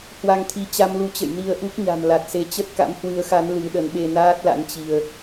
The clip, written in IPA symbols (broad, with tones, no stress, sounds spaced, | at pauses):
h w a˧ ŋ t̪ʰ i˨˦ t͡ɕ a˧ m l u˨˦ t͡ɕ ə̰˧˨ j n i˧ ə̯ ʔ u˦˥ k̚ ɲ a̤˨˩ m l a˨˩ t̚ s e˨˦ t͡ɕ ə˦˥ t̚ k a̰˧˥ m h w ɨ˨˦ ə̯ x a˨˦ n l ɨ˨˦ ɗ ə˨˦ n ɓ e˧ n aː˦˥ t̚ l a̰˧˥ n t͡ɕ i˧ ə̯